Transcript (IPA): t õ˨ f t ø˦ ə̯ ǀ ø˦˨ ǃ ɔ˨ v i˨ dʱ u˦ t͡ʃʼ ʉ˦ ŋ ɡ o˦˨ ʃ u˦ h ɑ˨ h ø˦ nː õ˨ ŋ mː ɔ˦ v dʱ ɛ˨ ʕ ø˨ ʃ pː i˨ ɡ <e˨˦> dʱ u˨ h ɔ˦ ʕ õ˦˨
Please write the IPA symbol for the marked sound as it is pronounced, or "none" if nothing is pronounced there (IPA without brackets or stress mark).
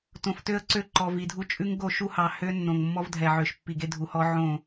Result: e˦